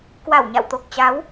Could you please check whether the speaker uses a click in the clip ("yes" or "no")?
no